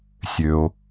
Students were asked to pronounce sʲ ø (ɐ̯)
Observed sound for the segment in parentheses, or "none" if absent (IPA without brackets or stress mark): o̯